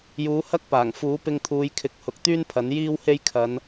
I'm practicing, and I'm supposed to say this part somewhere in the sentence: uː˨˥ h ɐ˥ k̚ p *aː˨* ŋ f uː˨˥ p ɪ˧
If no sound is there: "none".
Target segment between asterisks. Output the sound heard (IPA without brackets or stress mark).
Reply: aː˨˩